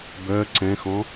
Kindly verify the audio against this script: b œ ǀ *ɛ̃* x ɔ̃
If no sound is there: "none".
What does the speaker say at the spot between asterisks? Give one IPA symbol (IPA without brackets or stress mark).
ɛ̃